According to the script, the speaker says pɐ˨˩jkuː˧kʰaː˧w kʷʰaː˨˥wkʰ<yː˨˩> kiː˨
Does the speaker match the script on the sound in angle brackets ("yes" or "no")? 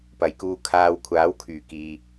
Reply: yes